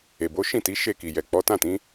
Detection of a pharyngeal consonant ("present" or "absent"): absent